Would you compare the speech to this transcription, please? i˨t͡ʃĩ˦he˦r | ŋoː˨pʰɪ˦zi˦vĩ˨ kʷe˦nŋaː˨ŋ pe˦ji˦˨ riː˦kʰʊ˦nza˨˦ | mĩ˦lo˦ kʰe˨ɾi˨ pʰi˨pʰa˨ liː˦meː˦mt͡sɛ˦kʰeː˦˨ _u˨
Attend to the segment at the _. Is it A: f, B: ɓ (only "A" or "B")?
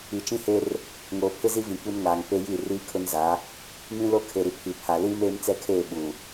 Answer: B